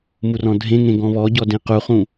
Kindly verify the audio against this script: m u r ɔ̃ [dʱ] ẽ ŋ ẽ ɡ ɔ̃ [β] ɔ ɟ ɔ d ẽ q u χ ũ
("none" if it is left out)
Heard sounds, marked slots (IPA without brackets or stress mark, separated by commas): dʱ, β